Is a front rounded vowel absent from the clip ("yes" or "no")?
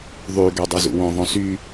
no